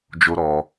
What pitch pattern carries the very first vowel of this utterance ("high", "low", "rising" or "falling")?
high